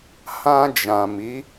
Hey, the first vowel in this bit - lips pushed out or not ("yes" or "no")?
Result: no